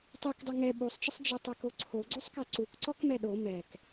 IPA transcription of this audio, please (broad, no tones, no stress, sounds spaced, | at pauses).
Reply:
tˤ i k dˤ ø ŋ ɛ ɓ u sˤ t͡ʃ ə sˤ d͡ʒ e tˤ ɛ k o ǀʰ o ɡ͡ǀ u sˤ k a ǀ u k ǀ ɔ k m ɛ ɗ o m ɛ k